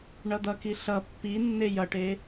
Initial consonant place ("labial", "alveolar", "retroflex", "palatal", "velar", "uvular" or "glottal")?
retroflex